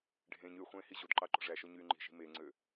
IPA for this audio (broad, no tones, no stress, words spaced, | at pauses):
ɖʱẽɲ yχʷẽː hiʑodǃɑ ǃo̤ʐæʃo ɲyːŋ͡ǃi̤ʃi̤ meŋ͡ǀø